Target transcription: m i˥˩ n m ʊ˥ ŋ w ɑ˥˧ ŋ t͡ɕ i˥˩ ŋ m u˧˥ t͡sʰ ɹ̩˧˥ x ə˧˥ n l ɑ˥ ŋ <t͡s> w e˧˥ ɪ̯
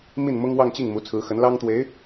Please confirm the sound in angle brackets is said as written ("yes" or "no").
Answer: no